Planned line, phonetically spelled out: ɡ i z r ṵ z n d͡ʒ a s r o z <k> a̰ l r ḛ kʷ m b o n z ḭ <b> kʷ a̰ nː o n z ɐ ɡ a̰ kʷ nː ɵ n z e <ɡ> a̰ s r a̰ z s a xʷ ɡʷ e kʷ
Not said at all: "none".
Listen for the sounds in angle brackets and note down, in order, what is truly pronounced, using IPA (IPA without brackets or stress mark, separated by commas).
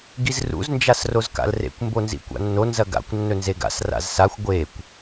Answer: k, none, ɡ